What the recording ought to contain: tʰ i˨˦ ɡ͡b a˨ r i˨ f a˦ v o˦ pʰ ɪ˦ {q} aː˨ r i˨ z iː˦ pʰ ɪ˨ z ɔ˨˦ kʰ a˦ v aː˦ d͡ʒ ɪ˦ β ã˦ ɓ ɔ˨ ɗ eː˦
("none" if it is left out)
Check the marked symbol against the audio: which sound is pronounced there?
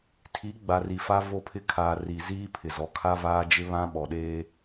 kʰ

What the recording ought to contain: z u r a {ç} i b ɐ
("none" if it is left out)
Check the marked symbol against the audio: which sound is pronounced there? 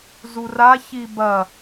ç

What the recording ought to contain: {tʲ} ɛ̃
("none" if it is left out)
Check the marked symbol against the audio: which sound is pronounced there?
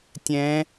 tʲ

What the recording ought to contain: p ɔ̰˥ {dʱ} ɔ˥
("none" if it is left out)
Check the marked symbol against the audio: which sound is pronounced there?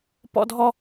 dʱ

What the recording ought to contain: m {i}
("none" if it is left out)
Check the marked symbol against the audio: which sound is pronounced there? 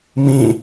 ĩ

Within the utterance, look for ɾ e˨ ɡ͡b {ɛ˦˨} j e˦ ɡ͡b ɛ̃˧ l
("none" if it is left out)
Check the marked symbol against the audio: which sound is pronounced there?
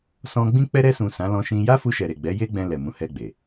ɛ˨˦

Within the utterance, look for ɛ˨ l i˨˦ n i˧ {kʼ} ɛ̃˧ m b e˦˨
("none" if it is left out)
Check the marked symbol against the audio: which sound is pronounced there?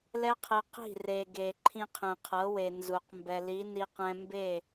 q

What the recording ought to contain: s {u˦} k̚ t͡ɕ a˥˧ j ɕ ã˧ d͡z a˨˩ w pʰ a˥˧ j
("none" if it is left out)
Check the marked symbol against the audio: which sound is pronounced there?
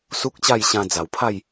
u˦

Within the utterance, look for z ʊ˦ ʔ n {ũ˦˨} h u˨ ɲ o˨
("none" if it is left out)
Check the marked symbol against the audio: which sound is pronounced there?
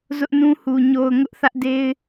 ũ˦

